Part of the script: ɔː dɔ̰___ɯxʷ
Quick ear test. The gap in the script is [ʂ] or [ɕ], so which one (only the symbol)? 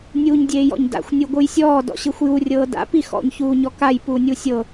ɕ